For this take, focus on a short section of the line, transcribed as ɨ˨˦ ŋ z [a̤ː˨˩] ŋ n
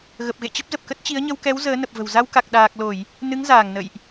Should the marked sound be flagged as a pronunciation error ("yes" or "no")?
yes